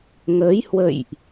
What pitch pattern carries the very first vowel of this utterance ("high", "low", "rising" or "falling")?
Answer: rising